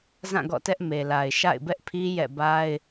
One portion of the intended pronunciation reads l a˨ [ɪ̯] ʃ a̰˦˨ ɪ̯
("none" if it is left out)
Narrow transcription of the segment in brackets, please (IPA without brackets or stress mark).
ɪ̯